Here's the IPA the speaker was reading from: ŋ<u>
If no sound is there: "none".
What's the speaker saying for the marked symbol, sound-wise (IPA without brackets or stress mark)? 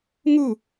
u